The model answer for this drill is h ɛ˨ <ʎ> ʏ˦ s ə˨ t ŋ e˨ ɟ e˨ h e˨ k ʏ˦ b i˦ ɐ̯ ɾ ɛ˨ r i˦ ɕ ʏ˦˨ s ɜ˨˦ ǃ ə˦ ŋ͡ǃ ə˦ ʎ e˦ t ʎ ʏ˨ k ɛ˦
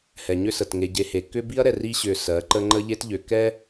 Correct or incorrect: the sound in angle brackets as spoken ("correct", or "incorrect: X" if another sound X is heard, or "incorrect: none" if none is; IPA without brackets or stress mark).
incorrect: ɲ